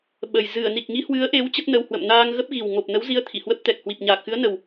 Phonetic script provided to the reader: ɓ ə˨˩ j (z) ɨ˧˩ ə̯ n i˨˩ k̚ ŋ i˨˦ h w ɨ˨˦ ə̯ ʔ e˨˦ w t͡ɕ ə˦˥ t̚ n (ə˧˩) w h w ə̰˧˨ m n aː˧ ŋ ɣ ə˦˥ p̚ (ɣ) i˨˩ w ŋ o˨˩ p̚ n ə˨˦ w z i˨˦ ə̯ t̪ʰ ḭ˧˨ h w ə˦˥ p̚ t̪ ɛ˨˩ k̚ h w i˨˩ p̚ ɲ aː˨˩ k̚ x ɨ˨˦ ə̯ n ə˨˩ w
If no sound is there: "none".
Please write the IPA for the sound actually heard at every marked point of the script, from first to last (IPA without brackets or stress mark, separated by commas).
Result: z, ə˧, ɣ